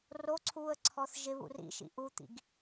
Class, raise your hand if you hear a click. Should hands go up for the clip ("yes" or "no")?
yes